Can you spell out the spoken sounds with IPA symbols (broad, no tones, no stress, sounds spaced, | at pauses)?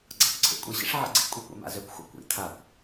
ɡ͡ǀ a kʷ ǀʰ ḛ kʷʼ i ɕ ḭ ʂ ʕ ḭ ɡ͡ǀ ḛ kʷʼ i kʷ ḛ m a̰ z ø kʷ xʷ a̰ kʷ ḭ tʰ a kʷ